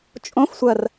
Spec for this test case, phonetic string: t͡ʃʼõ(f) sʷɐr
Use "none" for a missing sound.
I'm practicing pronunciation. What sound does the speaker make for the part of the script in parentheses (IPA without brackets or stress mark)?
f